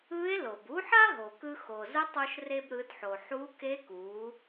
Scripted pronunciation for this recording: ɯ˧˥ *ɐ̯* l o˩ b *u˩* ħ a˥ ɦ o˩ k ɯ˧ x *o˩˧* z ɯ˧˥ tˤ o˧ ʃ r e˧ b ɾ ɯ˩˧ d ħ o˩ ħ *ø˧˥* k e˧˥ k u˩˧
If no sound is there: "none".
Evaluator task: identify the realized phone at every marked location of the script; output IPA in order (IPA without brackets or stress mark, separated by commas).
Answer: e̯, u˧˥, o˩, u˧˥